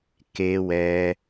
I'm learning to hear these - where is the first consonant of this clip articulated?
velum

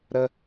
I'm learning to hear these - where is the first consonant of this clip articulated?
tongue tip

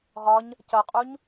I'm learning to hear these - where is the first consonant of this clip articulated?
uvula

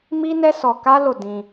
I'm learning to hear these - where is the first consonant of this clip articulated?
lips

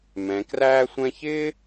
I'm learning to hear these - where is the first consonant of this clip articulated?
lips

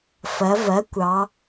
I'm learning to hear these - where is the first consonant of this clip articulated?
lips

